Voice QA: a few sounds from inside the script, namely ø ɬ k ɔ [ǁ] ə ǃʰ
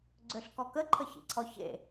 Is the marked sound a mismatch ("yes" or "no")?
yes